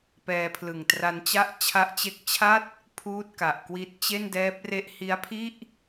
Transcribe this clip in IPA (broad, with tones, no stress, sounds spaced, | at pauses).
p ɛː˧ pʰ l ɯ˨˩ ŋ t r a˧ n t͡ɕ a˦˥ ʔ t͡ɕʰ a˦˥ ʔ t͡ɕ e˦˥ k̚ t͡ɕʰ a˥˩ t̚ | pʰ uː˥˩ t̚ k a˨˩ ʔ k w i˦˥ t̚ t͡ɕ e˥˩ n d ɛː˦˥ p̚ r e˦˥ ʔ h i˦˥ a̯ pʰ i˥˩ ʔ